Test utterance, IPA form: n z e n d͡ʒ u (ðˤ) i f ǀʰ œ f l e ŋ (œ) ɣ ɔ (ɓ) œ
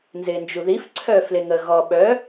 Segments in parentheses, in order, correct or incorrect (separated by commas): incorrect, incorrect, correct